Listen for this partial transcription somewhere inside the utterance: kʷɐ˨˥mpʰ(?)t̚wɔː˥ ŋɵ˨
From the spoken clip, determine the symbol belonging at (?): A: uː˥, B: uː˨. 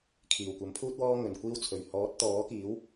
A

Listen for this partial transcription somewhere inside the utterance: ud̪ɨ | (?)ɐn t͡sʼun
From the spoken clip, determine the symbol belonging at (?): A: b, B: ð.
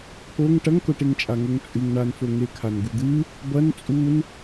A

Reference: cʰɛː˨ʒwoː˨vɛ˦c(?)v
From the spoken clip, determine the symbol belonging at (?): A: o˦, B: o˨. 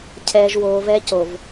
B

